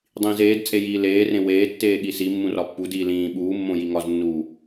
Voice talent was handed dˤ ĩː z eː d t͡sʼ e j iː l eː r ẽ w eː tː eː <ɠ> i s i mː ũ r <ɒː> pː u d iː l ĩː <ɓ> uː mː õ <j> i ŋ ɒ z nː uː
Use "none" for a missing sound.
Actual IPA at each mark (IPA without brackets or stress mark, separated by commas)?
ɠ, ɒ, ɓ, j